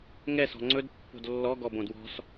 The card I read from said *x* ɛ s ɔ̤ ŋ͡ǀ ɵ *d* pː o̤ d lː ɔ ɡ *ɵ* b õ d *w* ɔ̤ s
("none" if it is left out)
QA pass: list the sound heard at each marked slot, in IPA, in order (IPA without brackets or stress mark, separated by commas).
ŋ, d, ɔ, w